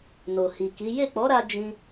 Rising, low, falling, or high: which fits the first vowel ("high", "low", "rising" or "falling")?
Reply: low